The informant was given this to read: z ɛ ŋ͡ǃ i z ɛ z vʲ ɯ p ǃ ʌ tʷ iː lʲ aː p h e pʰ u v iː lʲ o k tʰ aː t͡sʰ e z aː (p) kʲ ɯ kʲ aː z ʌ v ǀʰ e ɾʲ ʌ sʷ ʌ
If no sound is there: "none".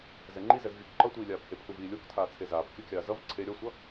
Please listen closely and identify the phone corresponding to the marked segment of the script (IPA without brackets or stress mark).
p